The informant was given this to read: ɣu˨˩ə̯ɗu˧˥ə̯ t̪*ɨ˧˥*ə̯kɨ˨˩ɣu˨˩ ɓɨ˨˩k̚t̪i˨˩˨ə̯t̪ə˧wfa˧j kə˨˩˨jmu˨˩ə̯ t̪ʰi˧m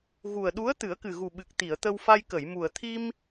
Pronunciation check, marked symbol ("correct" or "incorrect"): incorrect